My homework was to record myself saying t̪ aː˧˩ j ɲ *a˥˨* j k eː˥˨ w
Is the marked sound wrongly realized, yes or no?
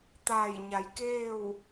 yes